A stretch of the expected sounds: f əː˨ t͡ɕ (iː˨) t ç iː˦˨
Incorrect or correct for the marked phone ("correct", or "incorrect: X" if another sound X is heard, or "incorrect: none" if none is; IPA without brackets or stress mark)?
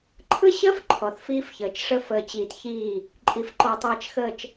correct